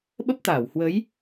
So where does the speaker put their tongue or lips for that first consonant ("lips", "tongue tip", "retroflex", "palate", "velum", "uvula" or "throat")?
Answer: lips